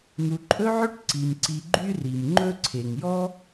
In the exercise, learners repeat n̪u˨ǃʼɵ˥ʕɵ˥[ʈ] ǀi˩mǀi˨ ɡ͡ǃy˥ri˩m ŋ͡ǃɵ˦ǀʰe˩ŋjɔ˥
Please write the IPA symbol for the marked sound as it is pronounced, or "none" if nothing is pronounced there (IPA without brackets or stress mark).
ʈ